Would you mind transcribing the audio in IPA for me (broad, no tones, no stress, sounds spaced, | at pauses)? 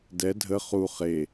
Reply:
d ɛ dʱ ə χ u χ e